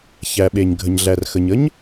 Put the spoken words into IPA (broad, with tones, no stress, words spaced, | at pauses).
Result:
çæ˩ ɓe˩ɲ ɡʱə˩ɲɮæ˩r xə˩ɲə˥ɲ